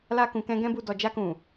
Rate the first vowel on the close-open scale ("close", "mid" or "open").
open